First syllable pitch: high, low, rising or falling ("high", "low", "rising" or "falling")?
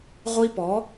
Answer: high